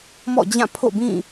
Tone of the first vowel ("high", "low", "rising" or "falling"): falling